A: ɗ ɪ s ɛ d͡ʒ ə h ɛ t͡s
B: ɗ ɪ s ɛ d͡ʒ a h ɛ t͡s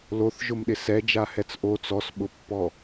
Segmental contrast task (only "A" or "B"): B